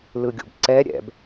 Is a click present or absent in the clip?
present